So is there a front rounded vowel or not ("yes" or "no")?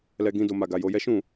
no